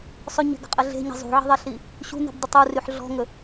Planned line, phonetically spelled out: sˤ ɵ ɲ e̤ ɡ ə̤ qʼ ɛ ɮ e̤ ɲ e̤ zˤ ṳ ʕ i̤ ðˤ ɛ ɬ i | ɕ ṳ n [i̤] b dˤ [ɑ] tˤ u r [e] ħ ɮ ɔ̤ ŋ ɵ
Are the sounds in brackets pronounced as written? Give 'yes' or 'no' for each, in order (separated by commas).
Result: yes, no, no